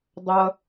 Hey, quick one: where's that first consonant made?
tongue tip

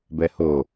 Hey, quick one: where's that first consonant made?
lips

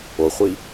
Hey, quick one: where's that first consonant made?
uvula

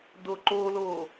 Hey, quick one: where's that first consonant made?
tongue tip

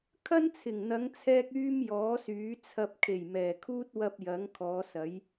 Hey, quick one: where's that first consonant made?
velum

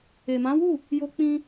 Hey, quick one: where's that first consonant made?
lips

